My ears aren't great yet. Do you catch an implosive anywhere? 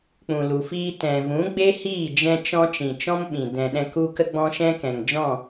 yes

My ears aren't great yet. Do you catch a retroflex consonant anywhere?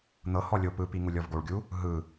yes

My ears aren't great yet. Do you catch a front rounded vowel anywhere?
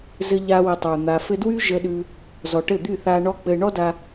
yes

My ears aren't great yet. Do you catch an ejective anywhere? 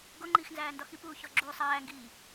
no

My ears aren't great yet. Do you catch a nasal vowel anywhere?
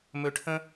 yes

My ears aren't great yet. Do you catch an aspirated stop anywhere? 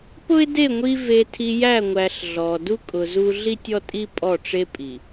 yes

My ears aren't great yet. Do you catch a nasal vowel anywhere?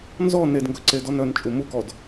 no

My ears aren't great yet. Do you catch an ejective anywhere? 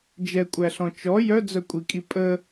yes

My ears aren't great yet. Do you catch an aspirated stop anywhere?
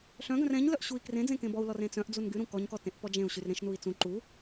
no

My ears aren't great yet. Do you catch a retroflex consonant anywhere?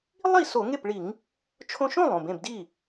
yes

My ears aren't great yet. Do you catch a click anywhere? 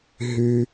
no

